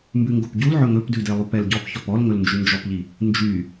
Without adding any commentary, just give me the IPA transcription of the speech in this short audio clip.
m b ʉ ŋ ɡ o p ɟ u l ʕ ɵ ŋ ɵ p d ʉ d e lˠ u p ɛ l ɟ ɔ p ç ɔ p ɔ l ŋ ɵ l n d͡ʒ ʉ n d͡ʒ ɔ p ʎ i | n d͡ʒ y

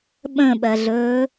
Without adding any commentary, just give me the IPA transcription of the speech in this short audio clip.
ɓ ə̃ ɓ ɜ ɮ ɵː

